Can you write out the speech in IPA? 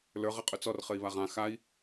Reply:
lə˞ ʁɘqʼɵt͡sɔr χɘi̯βaʁã xai̯

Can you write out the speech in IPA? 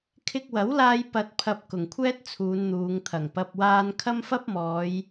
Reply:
kʰɪ˧k̚wɐ˨˥wlaː˧j pɐ˧t̚ pʰɐ˧p̚ kʊ˨ŋkʷʰɛː˥t̚ t͡sʰuː˨˧nn̪uː˨˧ŋt̪ʰɐ˨˩ŋ pɐ˨p̚waː˧n kʰɐ˥mfɐ˥p̚mɔː˨˧j

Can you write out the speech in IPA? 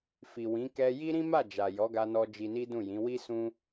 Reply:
fi˨wĩ˨˦ kɛ˧ji˦ ɾĩ˦ma˦˨ d͡ʒa˨jɔ˨˦ɡa˧nɔ˧ d͡ʒi˧ni˦ dũ˦˨jĩ˨˦ wi˦sũ˦

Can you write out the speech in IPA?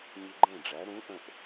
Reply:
ɲɯ˧ɡ͡ǃẽ˥˩ɖ͡ʐæ˩˥ ɾũ˩˥ ʔə̃˧ʔ

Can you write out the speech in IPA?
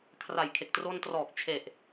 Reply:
kʰra˨˩jkʰe˨˩k̚ tro˧ntrɔː˨˩k̚ t͡ɕʰe˨˩ʔ

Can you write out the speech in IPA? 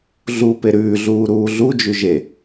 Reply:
ɮu peɾʉːɮuː ɾuːɮud͡ʒʉ ʒe

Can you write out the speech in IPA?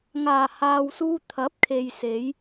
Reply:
ŋaː˨˩haː˨wsuː˧ t̪ʰɐ˨˥p̚kʰe˨j se˨˥j

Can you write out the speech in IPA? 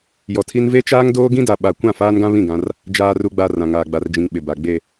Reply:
jɔ˨tʰi˦n ve˦t͡ʃaː˦ŋdoː˦ ɡĩ˦da˨ɓa˨ kʷã˦˨faː˦nɡã˦ βĩ˦˨ɡã˦r | d͡ʒaː˨ru˨ɡ͡ba˨ rã˨ŋaː˨ɡ͡ba˨rd͡ʒĩ˨ŋ ɓɪ˨ba˨ ɡ͡be˨

